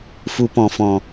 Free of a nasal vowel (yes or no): no